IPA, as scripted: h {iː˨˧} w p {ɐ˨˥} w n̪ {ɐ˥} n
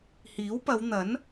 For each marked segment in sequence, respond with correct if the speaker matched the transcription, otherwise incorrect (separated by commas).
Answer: incorrect, incorrect, incorrect